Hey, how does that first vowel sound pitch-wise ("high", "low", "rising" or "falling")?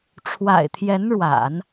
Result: low